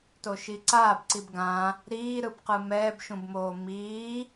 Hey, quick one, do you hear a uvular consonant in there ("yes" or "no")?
yes